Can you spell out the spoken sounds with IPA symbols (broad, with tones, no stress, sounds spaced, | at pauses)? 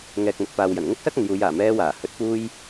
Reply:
ŋ ɛː˨ k̚ m ɵ˨ t̚ p aː˨ w j ɐ˨˩ n ŋ ʊ˥ k̚ s ɐ˥ k̚ ɐ˨ n j uː˨˧ j aː˨˩ m ɛː˧ w aː˨˩ h ɵ˨˥ t̚ p uː˧ j